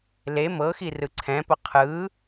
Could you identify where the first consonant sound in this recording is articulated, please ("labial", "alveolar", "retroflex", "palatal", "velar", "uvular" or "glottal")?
alveolar